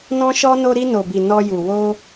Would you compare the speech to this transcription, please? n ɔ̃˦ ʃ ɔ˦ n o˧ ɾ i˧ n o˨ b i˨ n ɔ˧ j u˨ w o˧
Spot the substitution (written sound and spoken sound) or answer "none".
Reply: none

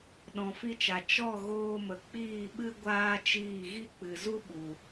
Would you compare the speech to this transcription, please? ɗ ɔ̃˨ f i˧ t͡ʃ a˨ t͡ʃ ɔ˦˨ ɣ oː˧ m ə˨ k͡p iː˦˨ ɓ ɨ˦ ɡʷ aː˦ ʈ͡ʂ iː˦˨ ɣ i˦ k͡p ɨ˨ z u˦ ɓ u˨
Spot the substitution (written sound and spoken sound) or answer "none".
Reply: ʈ͡ʂ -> t͡ʃ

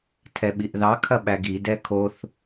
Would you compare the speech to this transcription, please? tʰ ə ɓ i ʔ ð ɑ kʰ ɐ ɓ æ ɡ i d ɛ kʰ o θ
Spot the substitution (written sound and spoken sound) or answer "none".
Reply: ə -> ɛ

